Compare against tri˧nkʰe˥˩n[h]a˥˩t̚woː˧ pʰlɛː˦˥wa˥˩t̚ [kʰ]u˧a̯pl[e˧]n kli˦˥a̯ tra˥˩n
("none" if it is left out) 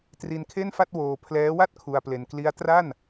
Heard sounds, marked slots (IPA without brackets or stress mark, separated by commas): f, kʰ, e˧